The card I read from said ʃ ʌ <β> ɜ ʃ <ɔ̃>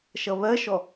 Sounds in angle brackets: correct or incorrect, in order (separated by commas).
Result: correct, incorrect